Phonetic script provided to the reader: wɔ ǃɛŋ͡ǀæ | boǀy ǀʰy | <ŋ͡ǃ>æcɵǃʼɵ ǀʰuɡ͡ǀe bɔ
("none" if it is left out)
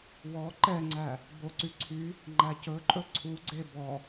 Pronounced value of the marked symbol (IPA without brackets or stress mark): ŋ͡ǃ